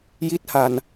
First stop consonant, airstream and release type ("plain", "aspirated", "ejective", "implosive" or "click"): plain